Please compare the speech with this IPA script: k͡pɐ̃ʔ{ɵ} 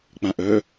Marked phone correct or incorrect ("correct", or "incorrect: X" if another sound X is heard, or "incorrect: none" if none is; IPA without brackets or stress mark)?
correct